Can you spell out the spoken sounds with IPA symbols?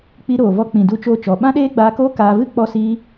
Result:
k͡pi˧ ɾoː˨vɔ˧ k͡pĩ˨du˧t͡ʃoː˧t͡ʃɔ˨ ɓã˦ɗeː˦ɡ͡baː˧koː˦ kaː˧vɨ˦ k͡pɔ˧siː˧

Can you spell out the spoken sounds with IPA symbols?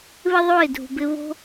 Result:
βɪ˦ðˤo˦˨ɪ̯dʱṳ˨bɪ˧ βo̤˦

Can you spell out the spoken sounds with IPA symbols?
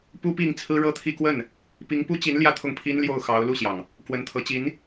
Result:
pu˥ pi˥˩ŋ t͡sʰɹ̩˥ɻɤ˥t̪ʰi˥˧ kwə˥˩n | pi˧˥ŋpu˥t͡ɕi˧˥n ljä˥˧t̪ʰʊ˥˩ŋpʰi˥n ljo˥˩ʊ̯xɑ˧˥ʊ̯ lu˥˩ɕjɑ˩ŋ | kwə˧˥nt̪ʰɤ˧˥ t͡ɕi˧˥n

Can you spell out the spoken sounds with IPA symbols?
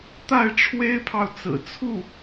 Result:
t̪a˥˩ɪ̯ʈ͡ʂʰwe˥ɪ̯pʰɑ˨ʊ̯ t͡sɹ̩˨˩t͡sʰu˥˩

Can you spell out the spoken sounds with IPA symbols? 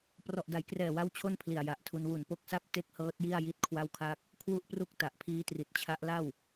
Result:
prɔ˨˩ʔda˩˦jkrɛː˨˩wa˦˥w t͡ɕʰo˥˩npʰli˨˩a̯ja˨˩ʔtʰu˧n wu˨˩npo˥˩k̚sa˥˩p̚ te˥˩k̚hɤː˦˥t̚ji˥˩a̯ ji˥˩t̚kʰwa˥˩wkʰa˥˩k̚ | kʰwu˥˩ʔpru˥˩k̚ta˨˩ʔpʰiː˦˥ tri˨˩t̚t͡ɕʰa˦˥ʔ la˥˩w

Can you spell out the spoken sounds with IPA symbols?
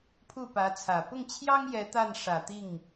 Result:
pʰu˥˩pä˧˥t͡sʰä˨˩ pʊ˥˩ŋt͡ɕʰjɑ˥ŋ jɛ˧˥t̪a˥˩n ʂä˨˩t̪i˥˩ŋ

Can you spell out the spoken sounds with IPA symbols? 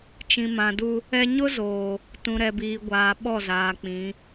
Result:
t͡ʃĩ˨mã˨du˦ | ɛ˦ ɲʊ˦zoː˨ | tũ˨ɾɛ˨biː˨ɡʷaː˨ ɓɔ˦˨zaː˨ k͡pĩ˨˦

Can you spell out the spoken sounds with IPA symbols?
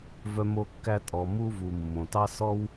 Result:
vœ˥mo˥kːæ˥ tʼɔ˧ mu˥vu˧mːõ˧tɑ˥ sɔ˥w

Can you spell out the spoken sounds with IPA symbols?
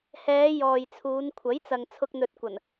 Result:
hɛː˨˧ jɔː˨jt͡sʰuː˨˧n kʷʰɐ˨˥jt͡sɐ˨ŋ t͡sʰʊ˧k̚n̪ɵ˨t̚kʷɐ˨˩n

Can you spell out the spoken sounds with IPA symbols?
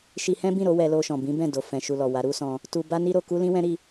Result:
ʃi˧hɛ̃˦bĩ˦˨ɾo˨˦ wɛ˧lo˧ ʃɔ̃˨bĩ˨˦ bɛ̃˦˨do˨ fɛ̃˨ʃu˨lɔ˨ wa˨˦ɾu˦sɔ̃˧ | tu˧ ba˦ni˦ ɾo˧ku˦lĩ˦wɛ̃˦ ɾi˦

